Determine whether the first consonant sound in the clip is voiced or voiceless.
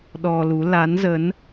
voiced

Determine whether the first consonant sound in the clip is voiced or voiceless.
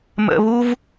voiced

